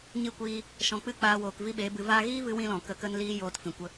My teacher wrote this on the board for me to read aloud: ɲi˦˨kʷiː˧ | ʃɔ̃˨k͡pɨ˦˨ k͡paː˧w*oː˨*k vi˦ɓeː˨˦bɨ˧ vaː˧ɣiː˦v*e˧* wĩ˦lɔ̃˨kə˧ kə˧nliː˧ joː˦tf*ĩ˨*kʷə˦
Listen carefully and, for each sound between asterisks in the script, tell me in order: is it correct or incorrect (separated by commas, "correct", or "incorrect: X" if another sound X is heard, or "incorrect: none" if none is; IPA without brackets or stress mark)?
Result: correct, incorrect: ɨ˧, correct